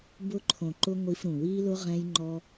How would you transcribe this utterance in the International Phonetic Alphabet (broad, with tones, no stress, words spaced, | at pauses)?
bʊ˧ǃʰõ˨ǃʊ˧ ŋʷi˧fɾũ˨wi˦lʊ˦ ʁɛ̃˦jŋ͡ǃɔ˦